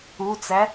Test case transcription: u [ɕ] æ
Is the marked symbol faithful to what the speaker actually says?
no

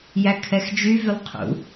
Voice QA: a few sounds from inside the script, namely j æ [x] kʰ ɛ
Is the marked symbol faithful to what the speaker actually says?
no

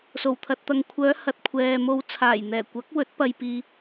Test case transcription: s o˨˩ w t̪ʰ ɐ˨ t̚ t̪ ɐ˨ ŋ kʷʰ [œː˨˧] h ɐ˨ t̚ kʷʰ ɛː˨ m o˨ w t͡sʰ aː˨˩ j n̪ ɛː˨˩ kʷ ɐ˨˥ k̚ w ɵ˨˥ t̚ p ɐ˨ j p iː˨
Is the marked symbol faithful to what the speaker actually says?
yes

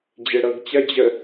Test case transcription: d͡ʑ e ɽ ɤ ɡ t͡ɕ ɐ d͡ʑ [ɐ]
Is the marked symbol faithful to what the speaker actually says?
no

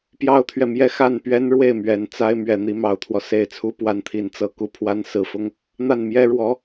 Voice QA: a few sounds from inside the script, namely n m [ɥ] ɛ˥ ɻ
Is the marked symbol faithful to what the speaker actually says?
no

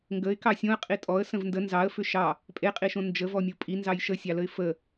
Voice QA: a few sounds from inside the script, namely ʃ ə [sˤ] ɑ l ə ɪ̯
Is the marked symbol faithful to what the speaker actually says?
no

